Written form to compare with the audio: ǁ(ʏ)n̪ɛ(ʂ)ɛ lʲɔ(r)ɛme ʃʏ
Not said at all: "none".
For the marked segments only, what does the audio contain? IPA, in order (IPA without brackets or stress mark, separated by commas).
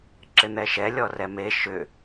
ɪ, ʃ, r